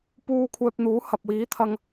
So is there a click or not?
no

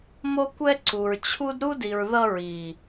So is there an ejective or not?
no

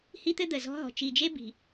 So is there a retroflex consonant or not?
no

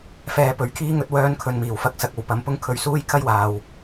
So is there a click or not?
no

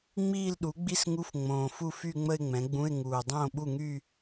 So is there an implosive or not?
yes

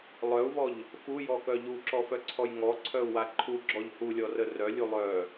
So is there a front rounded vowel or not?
yes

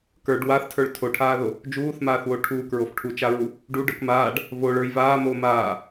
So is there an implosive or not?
no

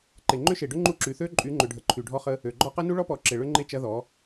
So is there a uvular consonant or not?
yes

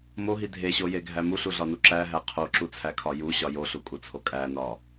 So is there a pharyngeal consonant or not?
no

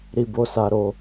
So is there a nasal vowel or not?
no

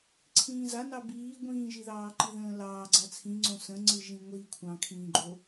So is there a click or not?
yes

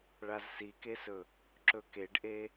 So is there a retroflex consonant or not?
yes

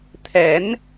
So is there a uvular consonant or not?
no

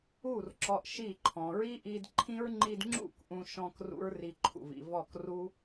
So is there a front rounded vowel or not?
no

